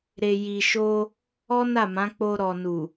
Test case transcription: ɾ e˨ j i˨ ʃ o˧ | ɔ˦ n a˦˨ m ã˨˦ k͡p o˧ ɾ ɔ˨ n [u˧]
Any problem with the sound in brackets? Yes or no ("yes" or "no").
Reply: yes